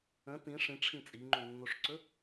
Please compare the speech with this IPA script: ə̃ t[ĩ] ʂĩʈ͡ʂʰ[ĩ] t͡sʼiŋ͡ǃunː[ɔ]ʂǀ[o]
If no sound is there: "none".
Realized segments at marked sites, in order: ĩ, ĩ, o, ɵ

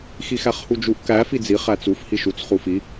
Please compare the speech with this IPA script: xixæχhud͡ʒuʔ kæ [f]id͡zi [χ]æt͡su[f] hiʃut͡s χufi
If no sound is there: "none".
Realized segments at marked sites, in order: f, χ, f

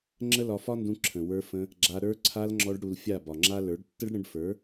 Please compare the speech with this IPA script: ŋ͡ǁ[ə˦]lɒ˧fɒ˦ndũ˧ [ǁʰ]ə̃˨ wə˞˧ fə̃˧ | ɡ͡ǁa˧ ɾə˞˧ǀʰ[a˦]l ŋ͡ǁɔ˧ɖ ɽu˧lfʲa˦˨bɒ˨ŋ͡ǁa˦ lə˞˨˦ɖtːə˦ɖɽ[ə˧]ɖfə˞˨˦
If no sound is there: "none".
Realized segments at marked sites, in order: ə˦, ǁʰ, a˧, ə̃˧

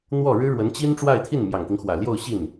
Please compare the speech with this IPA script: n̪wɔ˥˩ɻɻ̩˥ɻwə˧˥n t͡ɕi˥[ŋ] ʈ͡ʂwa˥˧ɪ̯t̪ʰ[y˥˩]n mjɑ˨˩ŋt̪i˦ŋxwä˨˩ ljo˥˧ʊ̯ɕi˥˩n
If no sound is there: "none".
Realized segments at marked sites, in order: n, i˥˩

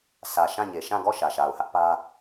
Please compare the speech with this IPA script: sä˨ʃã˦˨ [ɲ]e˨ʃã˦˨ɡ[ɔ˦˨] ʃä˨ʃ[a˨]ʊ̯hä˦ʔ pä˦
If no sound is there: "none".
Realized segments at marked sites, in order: ɲ, ɔ˦˨, a˨

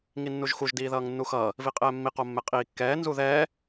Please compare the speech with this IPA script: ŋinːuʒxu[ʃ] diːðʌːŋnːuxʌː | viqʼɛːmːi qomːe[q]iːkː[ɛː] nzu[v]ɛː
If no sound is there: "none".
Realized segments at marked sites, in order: ʒ, qʼ, ɛː, ð

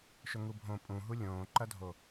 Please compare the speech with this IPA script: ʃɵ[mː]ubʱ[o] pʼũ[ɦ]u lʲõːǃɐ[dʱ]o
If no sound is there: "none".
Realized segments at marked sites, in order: ŋ, õ, ɦ, dʱ

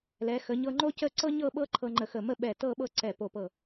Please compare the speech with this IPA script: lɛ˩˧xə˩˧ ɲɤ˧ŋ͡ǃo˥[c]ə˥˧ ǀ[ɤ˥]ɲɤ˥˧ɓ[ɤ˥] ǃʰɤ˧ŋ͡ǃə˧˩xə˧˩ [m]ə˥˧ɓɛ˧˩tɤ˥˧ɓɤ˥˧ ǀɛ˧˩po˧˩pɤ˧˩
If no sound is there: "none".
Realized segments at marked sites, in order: c, ɤ˥, ɤ˥, m

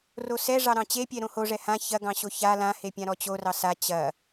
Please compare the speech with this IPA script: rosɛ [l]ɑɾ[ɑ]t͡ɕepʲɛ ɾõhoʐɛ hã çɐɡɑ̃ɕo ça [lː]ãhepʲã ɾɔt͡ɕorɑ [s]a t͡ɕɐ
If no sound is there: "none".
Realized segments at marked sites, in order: ʐ, ɑ̃, l, s

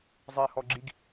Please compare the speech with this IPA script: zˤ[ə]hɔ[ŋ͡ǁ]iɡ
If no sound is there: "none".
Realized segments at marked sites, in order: ɛ, ɡ͡ǁ

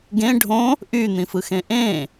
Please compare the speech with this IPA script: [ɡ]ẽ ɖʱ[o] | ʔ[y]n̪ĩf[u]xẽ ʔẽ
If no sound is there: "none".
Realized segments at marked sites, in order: ɡ, õ, y, ɯ

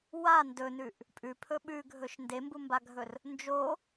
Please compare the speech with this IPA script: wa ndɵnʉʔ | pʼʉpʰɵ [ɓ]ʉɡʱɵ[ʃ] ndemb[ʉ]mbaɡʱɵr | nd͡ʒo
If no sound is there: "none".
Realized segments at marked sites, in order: ɓ, ʃ, u

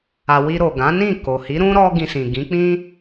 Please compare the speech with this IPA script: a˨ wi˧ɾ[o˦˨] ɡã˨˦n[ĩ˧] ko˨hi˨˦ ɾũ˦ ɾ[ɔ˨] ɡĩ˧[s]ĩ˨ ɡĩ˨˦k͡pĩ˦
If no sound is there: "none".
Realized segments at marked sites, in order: o˨, ĩ˦˨, ɔ˦, s

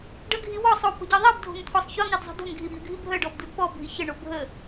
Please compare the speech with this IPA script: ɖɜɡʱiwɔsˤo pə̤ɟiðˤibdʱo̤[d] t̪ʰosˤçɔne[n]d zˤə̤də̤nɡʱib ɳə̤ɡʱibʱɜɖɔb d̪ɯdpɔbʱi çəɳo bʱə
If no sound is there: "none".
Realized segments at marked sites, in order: n, none

